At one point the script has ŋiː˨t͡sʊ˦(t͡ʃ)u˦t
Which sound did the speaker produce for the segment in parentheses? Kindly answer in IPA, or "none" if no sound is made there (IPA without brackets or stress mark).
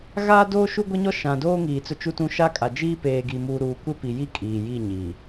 t͡ʃ